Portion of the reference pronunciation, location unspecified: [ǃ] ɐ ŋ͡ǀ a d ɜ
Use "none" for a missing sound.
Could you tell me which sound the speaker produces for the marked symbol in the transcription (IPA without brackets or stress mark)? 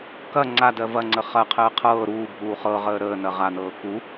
k